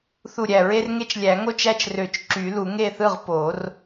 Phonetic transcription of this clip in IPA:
θ u˧˩ ɾʲ æ˧˩ ɹ e˦ r ŋ e˦ t͡ʃ lʲ æ˨˩˦ ŋ o˥˩ t͡ʃ æ˦ t͡ʃ r ø˨˩˦ t͡ʃ ǁ y˨˩˦ l u˨˩˦ ŋ e˥˩ θ ɯ˥˩ ʁ p o˨˩˦ r

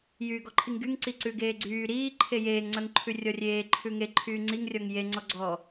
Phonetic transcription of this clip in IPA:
j yː ɡ ɔ ǃʰ i ŋ ɡ y ŋ ǀ i ǀ ʉ ɡ eː ɡ͡ǀ yː ɾ iː ǃʰ e j eː ŋ ŋ͡ǀ œ ŋ ǃʰ ʉ rʲ ɔ rʲ eː ǃʰ ʉ ŋ e ǃʰ yː ŋ͡ǀ i ŋ rʲ ɔ ŋ j e ŋ͡ǀ ɔ ɡ͡ǀ ɔ

